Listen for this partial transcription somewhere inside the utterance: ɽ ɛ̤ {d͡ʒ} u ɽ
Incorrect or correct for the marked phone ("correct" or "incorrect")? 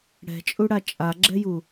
incorrect